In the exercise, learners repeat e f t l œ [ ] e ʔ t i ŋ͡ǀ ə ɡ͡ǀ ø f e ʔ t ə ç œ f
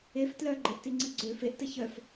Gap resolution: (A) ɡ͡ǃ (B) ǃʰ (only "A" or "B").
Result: A